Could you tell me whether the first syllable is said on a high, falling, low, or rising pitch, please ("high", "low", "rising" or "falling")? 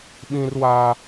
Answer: high